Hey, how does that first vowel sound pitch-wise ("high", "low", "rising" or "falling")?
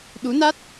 rising